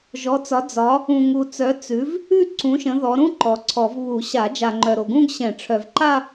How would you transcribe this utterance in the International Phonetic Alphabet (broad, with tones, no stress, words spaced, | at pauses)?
ʒɔ˨˦t͡sɒ˨˦ d͡zɒ˨˦ | ũ˨ŋu˨t͡sœ˨˦ t͡sʉ˨˦v | ʉ˥˧ ǀũ˨˦ʃə̃˨˦ ðɔ˨˦ ɾũ˥˧ ǃɔ˨ǀʰɔ˨˩˦v βu˨˩˦ɕa˨˩˦ d͡ʒa˨ŋ͡ǃœ˨ɾo˨ɡũ˥˧ɡ ɕɛ̃˨˩˦ʈ͡ʂʰœ˨vǃa˥˧